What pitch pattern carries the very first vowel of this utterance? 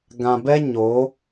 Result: low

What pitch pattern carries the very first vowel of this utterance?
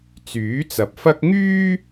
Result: rising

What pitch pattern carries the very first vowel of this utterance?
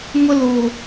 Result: high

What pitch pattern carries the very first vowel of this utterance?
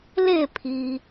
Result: falling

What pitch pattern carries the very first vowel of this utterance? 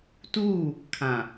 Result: falling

